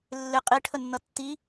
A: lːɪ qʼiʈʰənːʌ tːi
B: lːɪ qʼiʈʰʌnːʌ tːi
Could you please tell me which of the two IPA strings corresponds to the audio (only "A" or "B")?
A